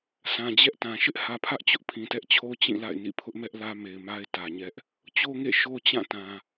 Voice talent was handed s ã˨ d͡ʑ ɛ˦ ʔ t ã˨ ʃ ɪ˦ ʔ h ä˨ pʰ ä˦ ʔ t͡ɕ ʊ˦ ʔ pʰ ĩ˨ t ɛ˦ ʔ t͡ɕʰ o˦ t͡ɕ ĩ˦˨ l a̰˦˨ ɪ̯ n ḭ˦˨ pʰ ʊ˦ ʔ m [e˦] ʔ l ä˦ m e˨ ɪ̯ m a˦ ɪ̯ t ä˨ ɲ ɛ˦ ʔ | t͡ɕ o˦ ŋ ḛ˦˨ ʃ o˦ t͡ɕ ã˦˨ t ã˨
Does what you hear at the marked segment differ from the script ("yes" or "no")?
yes